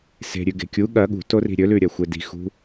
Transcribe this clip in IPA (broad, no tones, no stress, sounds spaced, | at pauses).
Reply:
s e̤ ɾʲ ʉ ɡ e̤ kʲ u ɠ ɐ ɠ ṳ t o r i̤ ɾʲ ɵ l ʉ ɾʲ ɐ xʷ e d i̤ x ṳ